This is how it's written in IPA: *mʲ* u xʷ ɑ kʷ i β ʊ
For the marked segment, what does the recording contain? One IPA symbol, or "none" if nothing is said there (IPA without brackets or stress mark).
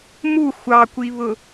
m